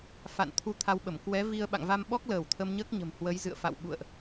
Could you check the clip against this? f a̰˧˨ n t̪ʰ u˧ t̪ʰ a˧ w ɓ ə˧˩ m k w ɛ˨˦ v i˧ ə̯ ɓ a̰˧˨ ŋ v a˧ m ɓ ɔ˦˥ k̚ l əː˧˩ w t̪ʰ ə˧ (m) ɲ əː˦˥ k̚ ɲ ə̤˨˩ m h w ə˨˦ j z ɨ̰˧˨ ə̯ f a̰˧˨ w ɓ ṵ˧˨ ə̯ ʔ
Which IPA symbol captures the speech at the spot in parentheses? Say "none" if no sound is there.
m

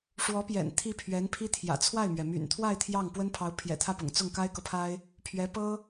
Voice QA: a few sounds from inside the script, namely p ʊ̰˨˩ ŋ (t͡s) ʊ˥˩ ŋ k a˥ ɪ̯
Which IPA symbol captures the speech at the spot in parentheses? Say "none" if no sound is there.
t͡s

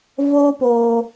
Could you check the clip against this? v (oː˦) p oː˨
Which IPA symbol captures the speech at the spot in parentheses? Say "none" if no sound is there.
oː˦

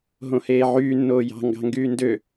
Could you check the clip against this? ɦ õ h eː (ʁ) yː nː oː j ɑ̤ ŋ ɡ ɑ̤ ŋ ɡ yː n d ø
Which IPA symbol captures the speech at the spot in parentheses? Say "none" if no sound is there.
ʕ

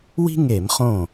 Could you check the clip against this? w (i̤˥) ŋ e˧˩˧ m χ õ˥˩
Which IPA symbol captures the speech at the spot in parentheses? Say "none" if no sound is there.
i̤˥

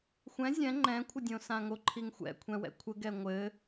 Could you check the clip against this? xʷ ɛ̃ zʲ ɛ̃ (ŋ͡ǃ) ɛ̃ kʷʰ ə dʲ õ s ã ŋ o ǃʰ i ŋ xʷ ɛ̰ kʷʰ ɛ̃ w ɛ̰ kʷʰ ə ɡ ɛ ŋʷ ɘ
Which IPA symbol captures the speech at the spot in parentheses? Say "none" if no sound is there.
ŋ͡ǃ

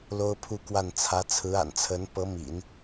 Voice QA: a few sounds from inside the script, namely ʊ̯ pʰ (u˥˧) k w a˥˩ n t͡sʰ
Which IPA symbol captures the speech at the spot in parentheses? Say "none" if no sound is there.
u˥˧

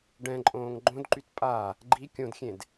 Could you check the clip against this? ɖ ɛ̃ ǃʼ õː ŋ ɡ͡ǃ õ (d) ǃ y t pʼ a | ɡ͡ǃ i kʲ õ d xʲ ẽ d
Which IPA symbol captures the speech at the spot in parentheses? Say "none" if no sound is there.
d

